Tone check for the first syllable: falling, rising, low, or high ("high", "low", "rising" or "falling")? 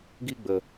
high